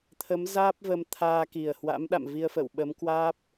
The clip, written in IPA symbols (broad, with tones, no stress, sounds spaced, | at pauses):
t̪ʰ ə˨˦ m z aː˦˥ p̚ v ə˧ m t̪ʰ aː˧ k i˨˩ ə̯ h w a̰˧˥ m ɗ a̰˧˨ m v i˧ ə̯ f ə̰˧˨ w ɓ ə˨˦ m k w aː˦˥ p̚